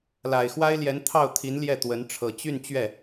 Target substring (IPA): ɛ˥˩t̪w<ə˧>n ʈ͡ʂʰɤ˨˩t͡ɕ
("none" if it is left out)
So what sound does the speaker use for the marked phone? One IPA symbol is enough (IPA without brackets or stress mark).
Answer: ə˧˥